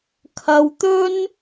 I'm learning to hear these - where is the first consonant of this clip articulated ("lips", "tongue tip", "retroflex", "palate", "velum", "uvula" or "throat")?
velum